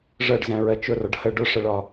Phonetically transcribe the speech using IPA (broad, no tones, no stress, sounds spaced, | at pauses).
ʐ ɜ ɖ z æ̃ ɹ ɜ t͡ʃ ʊ r ɒ ɖ h ə ɖ ʊ ʂ ə ɭ ɒ